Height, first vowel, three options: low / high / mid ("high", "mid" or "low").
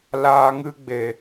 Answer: low